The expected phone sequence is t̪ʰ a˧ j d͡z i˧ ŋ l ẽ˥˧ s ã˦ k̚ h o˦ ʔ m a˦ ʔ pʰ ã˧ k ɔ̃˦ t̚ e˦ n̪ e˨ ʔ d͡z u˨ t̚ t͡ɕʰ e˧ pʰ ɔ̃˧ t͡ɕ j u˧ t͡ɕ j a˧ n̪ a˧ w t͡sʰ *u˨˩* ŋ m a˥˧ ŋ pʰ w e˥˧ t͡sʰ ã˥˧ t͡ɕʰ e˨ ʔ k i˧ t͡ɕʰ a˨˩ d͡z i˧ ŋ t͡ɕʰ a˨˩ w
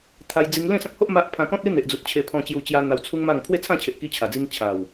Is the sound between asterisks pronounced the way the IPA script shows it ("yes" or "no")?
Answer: no